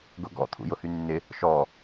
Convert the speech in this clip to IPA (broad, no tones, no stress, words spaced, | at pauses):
ɡʊɡɔ̰ t̪ʰṵjʊhynːɪ | ʃɔ